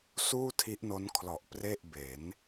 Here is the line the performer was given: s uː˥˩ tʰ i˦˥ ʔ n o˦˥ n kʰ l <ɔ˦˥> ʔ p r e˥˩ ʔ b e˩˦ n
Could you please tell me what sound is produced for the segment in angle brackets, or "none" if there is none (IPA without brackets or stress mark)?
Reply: ɔ˨˩